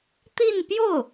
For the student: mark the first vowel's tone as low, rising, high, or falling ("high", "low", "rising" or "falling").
falling